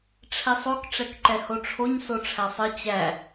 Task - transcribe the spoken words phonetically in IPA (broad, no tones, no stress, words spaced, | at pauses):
ʈ͡ʂʰɛsˤok ʈ͡ʂɛkǃɛhoʈ͡ʂʰoɲ soʈ͡ʂʰæsˤɘ t͡ɕæ